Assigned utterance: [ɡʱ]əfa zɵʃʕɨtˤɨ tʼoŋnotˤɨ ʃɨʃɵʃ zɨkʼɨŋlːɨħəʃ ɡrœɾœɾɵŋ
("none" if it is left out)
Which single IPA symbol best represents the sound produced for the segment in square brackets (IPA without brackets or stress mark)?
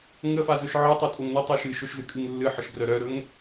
ŋ